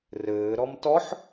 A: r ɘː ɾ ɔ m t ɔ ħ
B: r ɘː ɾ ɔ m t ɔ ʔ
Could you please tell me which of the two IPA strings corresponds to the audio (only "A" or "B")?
A